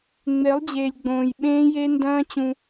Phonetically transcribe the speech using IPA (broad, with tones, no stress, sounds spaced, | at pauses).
ŋ͡m e˨˦ lˠ d͡ʑ eː˨ lʲ ɡ͡b õː˨ j ɓ ẽː˦ j e˦ n d ɐ̃ː˦ t͡ɕ ũ˧